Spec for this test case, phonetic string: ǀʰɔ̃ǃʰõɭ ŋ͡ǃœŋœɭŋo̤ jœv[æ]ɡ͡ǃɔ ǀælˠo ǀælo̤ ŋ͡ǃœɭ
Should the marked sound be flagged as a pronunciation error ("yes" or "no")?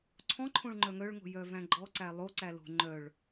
yes